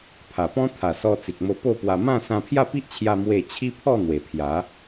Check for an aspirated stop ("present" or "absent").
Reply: present